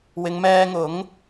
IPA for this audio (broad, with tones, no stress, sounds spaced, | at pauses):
w ɪ˨˧ ŋ m ɛː˧ ŋ ʊ˨˥ ŋ